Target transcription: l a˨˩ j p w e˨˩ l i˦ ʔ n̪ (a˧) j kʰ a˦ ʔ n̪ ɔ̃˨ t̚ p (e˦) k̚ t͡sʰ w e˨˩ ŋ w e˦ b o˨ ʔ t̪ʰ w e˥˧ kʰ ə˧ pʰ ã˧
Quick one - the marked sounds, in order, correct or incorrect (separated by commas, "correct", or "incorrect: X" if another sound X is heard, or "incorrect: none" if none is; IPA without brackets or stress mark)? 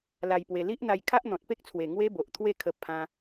correct, correct